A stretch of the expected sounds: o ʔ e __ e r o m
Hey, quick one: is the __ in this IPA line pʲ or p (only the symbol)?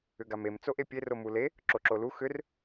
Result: pʲ